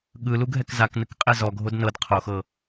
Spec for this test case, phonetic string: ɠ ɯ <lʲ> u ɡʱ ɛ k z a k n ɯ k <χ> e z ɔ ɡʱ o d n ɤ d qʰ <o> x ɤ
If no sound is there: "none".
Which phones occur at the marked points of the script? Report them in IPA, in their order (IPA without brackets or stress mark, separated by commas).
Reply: l, qʼ, o